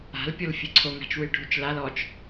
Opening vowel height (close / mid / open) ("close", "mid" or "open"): open